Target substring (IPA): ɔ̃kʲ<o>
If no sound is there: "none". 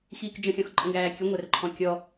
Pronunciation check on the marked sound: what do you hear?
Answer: ɔ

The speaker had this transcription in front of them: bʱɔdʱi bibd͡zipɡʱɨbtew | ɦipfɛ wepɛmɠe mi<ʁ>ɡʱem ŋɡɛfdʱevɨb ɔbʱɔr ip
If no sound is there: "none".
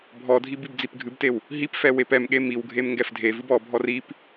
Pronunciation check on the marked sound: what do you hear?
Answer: w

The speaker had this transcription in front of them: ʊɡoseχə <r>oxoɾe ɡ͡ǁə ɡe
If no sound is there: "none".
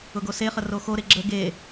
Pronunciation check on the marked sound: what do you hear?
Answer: r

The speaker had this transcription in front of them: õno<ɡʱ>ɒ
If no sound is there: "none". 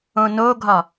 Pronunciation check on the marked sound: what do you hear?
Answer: ɡʱ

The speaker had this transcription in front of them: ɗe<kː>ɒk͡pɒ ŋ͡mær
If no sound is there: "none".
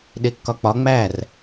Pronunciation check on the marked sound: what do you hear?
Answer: kː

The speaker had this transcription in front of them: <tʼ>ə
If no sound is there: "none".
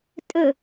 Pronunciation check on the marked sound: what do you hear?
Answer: tʼ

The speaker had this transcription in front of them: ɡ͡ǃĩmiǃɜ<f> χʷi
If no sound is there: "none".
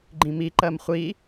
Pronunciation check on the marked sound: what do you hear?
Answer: m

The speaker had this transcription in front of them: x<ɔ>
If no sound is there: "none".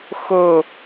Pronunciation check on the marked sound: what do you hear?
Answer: o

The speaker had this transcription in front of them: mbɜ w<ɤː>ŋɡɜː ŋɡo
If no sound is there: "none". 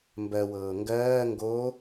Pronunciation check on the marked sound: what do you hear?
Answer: ɤː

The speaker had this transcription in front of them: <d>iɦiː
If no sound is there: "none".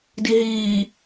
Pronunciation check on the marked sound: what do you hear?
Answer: d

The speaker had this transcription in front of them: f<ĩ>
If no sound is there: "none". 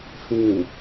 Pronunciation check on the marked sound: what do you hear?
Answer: ĩ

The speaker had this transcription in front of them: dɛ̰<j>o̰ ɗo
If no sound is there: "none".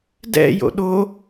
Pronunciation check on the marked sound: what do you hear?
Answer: j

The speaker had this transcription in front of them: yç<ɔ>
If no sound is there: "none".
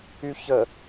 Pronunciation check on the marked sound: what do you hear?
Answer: ə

